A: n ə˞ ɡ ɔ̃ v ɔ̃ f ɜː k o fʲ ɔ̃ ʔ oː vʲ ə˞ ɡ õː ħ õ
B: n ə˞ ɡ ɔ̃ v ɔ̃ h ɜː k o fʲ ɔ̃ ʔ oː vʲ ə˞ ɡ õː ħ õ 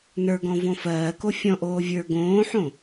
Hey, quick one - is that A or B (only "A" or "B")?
A